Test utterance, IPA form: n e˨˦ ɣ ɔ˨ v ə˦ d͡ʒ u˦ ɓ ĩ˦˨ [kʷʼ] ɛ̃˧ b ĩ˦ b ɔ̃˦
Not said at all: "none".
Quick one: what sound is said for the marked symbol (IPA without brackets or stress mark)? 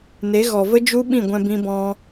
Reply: ɡʷ